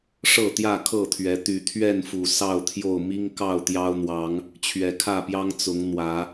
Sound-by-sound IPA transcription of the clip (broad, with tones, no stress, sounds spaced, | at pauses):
ʂ ɤ˥˨ t̪ j ä˥˨ kʰ ɤ˥˨ t̪ʰ ɥ ɛ˨˦ t̪ y˨˩ t̪ʰ ɥ ɛ˥˨ n f u˨˩ s ɑ˥˨ ʊ̯ t̪ʰ j o˥˨ ʊ̯ m i˦ ŋ k ɑ˥˨ ʊ̯ t̪ j ɑ˦ ʊ̯ n̪ w ɑ˨˦ ŋ | t͡ɕʰ ɥ ɛ˨˩ kʰ ä˥˨ p j ɑ˦ ŋ t͡s ʊ˨˦ ŋ n̪ w ä˨˦